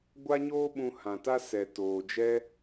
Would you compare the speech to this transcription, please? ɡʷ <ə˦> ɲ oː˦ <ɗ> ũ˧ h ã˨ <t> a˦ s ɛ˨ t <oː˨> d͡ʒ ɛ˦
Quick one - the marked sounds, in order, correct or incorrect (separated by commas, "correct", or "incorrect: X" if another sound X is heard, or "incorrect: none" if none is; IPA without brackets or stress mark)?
incorrect: a˦, incorrect: ɓ, correct, correct